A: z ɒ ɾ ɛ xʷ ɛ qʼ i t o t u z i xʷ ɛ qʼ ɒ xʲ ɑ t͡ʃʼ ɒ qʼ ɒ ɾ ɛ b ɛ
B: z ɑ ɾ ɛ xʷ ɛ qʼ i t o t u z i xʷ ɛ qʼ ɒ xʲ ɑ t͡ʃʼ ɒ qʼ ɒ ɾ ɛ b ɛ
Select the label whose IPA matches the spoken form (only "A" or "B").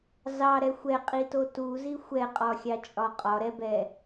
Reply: B